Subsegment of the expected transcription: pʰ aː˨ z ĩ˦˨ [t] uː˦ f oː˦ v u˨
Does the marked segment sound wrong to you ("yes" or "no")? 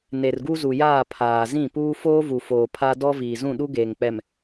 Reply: yes